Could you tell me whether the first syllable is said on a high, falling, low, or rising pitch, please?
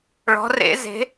rising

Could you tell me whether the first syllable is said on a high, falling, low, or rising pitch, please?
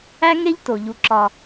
high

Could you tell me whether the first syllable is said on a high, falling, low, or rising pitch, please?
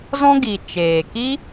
high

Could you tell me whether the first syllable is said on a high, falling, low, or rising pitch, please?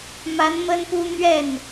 rising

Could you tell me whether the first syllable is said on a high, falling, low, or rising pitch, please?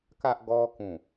high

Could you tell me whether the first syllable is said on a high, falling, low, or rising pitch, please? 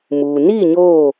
low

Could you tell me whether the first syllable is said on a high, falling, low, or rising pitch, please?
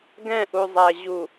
falling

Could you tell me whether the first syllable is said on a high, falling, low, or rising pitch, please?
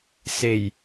low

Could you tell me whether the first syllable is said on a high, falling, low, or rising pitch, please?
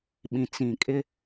low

